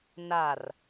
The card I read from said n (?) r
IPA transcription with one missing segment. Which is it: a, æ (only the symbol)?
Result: a